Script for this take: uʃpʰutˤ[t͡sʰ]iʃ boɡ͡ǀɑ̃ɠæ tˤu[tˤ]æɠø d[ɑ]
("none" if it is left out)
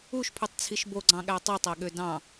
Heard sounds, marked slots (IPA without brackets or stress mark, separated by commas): t͡sʰ, tˤ, ɑ̃